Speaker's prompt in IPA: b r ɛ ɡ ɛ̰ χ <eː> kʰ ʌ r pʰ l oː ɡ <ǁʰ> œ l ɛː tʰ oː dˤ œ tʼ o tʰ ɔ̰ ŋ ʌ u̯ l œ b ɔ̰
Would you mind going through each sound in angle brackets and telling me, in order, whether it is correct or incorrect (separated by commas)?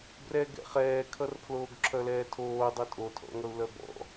incorrect, correct